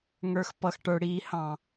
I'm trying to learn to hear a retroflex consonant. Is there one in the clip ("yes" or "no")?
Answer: yes